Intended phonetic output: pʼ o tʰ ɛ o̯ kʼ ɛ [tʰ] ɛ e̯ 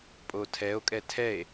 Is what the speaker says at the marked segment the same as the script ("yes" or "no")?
yes